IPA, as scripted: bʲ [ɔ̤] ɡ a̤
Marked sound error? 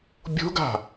yes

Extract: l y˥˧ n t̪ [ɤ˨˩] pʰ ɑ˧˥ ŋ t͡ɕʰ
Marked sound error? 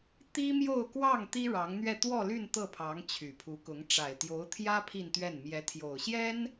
yes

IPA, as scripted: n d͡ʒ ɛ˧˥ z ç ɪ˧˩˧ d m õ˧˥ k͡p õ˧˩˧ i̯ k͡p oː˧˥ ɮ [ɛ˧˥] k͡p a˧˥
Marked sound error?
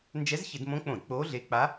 yes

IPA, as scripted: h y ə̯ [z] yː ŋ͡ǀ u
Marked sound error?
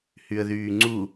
yes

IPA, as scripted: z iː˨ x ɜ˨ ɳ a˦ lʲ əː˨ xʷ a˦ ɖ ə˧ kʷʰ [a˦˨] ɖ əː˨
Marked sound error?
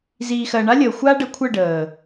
yes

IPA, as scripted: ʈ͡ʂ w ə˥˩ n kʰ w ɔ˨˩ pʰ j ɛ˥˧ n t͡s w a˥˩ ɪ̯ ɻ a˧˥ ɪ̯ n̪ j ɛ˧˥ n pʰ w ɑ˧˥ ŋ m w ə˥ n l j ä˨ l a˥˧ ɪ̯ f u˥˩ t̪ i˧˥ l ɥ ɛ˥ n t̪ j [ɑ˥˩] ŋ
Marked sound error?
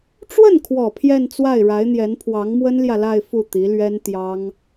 yes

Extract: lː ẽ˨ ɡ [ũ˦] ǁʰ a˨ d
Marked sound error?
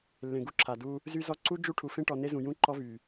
yes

